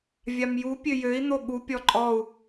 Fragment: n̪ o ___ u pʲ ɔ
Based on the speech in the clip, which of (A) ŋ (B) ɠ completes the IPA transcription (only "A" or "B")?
B